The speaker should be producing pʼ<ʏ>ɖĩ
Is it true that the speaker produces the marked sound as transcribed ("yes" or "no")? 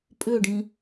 yes